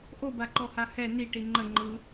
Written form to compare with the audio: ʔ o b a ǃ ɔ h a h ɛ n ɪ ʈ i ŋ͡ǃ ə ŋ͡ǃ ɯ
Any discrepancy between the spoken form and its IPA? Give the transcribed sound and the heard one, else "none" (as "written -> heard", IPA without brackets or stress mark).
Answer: ɪ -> i